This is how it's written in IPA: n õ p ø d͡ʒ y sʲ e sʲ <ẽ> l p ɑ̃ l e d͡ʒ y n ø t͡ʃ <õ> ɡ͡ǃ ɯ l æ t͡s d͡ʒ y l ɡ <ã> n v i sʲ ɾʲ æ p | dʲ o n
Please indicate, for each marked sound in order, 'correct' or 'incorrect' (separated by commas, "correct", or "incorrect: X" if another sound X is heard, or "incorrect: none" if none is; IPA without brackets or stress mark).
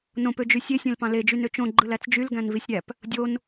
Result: correct, correct, incorrect: æ̃